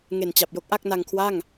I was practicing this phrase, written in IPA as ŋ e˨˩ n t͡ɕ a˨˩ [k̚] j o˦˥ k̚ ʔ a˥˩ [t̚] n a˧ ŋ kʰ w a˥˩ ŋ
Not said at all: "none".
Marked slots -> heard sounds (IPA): p̚, k̚

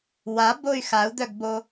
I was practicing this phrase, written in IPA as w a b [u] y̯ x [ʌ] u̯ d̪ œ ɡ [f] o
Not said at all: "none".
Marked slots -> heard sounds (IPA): o, a, b

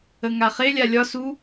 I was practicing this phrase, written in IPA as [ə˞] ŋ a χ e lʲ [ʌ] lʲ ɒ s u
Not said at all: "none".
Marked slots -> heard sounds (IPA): ə, a

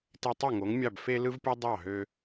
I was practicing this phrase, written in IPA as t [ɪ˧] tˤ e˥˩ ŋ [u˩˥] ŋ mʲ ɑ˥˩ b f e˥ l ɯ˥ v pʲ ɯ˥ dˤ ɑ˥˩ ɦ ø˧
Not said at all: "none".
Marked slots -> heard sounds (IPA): i˧, o˩˥

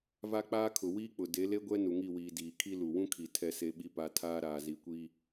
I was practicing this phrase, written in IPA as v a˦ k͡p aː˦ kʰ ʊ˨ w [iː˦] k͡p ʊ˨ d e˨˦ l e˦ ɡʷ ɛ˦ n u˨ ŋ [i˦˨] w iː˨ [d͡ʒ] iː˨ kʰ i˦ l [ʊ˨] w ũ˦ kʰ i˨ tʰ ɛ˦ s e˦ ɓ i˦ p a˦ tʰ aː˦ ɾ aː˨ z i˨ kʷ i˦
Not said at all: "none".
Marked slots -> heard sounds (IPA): iː˦, i˦˨, d, u˨

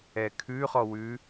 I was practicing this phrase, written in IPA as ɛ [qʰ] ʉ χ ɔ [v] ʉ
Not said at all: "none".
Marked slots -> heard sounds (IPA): kʰ, w

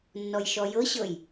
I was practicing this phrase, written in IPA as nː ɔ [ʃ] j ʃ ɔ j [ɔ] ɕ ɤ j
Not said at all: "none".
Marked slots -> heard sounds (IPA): none, ɤ

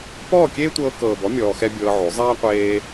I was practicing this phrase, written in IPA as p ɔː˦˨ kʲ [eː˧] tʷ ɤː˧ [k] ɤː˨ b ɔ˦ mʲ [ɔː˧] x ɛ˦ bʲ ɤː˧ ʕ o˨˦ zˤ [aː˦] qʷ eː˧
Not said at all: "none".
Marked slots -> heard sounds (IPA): eː˦, k, ɔː˧, aː˦

